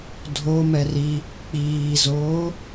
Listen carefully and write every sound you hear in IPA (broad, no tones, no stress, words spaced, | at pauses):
dʱo mɛri | k͡piːzoː